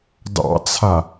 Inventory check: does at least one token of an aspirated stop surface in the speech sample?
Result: yes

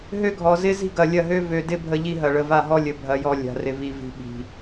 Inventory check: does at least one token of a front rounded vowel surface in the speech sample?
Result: yes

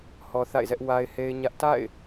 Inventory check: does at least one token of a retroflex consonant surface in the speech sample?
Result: no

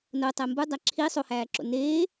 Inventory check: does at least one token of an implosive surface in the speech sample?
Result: no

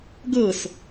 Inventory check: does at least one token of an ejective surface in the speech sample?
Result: no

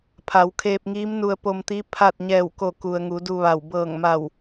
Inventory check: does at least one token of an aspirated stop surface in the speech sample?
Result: yes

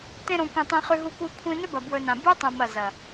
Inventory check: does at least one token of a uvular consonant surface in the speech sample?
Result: yes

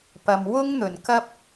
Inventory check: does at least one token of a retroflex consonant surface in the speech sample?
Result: no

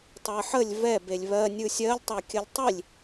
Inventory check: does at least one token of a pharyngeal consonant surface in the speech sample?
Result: yes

